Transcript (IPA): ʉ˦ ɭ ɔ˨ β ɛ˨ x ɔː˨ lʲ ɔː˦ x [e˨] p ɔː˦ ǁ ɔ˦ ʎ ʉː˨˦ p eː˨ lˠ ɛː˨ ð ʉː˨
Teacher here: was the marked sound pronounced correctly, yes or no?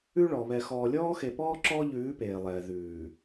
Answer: yes